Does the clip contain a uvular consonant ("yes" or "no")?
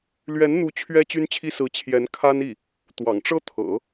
no